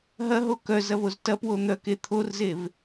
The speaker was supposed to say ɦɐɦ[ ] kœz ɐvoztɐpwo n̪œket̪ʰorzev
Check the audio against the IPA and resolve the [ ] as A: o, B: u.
A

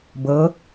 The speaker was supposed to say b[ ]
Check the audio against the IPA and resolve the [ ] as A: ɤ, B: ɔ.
A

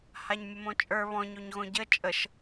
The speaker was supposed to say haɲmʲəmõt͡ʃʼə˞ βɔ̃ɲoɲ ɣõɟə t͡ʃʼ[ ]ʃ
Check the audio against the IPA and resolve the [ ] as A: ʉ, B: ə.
B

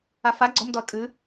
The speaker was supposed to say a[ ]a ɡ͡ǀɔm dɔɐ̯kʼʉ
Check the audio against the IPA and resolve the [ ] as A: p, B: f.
B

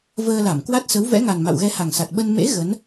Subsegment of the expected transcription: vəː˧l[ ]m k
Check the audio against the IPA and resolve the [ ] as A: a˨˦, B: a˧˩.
B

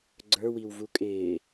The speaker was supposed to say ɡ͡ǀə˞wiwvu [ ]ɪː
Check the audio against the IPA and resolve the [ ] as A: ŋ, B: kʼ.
B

